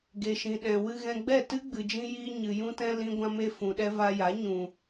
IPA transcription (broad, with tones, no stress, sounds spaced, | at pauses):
ɡ e˨ ʃ ĩ˨ ɗ ɛ̃˨ w ɨ˧ ɣ ɛ̃˧ ɡ͡b ɛ˦˨ t ɨ˦ ɡ͡b ɨ˨ d͡ʒ ĩ˧ j iː˧ ɲ ɨ˨ j ũ˧ t ɛ̃˧ l ĩ˧ ɡʷ ã˧ m e˧ f ũ˨ ɗ ɛ˧ v a˧ j a˨˦ ɲ ũ˨